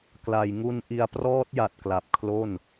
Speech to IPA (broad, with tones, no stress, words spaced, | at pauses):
kla˨˩jŋu˧nʔi˧a̯ prɔː˦˥t̚ja˨˩t̚ kla˨˩p̚kʰlo˥˩n